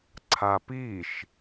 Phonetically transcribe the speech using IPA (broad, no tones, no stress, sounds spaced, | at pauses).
ǀʰ a p i ʃ